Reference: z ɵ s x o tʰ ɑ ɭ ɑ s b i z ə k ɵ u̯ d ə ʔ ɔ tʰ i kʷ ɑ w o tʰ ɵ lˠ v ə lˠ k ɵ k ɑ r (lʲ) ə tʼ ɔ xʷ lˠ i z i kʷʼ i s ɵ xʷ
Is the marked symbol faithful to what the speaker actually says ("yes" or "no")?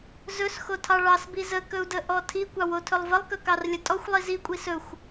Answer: yes